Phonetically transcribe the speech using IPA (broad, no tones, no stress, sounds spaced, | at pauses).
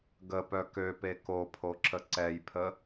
ɡ ə p œ k ø p e k o pʰ o ǁ ə ǀ ɛ j pʰ ə